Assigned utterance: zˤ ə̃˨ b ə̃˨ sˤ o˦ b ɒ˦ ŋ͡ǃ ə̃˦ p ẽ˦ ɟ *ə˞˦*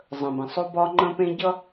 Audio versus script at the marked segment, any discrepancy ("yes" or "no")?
yes